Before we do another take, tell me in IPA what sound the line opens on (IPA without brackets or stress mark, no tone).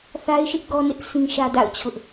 θ